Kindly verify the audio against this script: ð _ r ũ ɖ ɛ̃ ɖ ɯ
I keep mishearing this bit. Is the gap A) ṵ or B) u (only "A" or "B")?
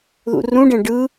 A